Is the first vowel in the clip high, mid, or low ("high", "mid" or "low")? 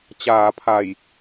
low